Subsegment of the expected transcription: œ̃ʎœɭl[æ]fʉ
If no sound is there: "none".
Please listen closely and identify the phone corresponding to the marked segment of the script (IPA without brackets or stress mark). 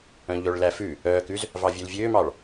æ